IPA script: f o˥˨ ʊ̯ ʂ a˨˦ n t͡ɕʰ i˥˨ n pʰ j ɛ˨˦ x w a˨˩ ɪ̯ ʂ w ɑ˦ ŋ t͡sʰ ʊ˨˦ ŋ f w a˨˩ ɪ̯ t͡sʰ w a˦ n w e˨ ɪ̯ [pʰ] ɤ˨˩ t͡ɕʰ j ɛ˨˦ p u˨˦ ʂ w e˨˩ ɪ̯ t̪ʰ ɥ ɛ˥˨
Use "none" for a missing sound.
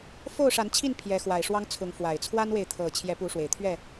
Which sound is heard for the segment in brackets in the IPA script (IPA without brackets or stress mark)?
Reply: t̪ʰ